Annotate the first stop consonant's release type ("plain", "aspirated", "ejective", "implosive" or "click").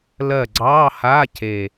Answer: click